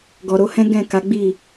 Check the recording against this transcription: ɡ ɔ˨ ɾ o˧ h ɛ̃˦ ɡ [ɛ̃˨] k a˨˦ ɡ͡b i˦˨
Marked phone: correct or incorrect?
incorrect